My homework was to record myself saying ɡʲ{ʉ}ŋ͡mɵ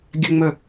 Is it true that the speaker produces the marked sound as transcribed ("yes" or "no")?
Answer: no